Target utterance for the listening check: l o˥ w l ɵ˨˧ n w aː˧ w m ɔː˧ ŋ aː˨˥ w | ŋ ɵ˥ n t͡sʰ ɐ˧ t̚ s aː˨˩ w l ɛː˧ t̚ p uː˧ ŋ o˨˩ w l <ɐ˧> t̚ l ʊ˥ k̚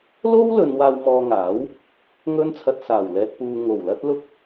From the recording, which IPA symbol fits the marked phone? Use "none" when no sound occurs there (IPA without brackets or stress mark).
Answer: ɐ˥